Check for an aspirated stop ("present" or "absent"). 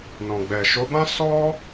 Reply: absent